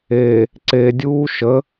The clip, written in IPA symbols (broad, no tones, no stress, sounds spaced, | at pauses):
e | ǀ e dʲ uː ʃ ə